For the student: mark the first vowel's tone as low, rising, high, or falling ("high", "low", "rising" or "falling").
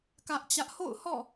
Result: high